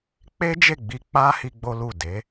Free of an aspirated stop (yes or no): yes